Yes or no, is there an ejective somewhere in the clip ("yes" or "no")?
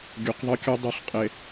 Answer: yes